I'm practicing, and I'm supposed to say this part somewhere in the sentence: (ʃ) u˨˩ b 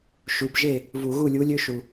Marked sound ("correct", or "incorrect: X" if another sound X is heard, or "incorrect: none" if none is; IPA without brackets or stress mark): correct